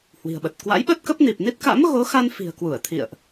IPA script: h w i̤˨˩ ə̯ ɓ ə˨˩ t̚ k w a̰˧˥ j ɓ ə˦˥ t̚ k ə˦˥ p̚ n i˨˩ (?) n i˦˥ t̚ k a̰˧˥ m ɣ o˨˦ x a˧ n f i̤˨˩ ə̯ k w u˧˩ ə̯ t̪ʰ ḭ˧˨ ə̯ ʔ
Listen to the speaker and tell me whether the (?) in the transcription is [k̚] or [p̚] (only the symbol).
p̚